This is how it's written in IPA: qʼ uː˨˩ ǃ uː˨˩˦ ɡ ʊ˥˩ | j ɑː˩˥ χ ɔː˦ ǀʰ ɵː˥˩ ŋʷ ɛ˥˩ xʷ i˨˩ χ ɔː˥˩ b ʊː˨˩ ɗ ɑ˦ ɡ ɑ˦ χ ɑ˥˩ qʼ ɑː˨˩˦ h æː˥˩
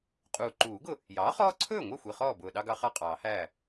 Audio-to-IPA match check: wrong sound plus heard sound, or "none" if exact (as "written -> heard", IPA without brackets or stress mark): none